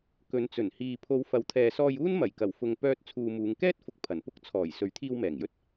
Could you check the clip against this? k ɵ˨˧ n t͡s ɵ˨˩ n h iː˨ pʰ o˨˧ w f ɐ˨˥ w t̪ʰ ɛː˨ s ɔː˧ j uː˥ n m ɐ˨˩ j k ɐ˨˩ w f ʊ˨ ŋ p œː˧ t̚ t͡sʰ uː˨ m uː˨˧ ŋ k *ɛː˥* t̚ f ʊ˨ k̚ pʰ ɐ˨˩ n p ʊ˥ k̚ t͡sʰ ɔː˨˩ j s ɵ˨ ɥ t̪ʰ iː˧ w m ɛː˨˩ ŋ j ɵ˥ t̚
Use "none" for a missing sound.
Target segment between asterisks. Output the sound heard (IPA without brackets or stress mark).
ɛː˥